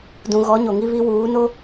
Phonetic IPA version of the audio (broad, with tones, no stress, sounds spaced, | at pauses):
d ũ˨ ɣ ɔ˨˦ ɲ o˨ ŋ i˦ β i˦ w uː˨˦ n o˦